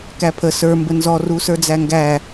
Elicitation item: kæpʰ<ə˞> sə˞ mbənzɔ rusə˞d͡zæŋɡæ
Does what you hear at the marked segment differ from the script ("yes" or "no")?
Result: yes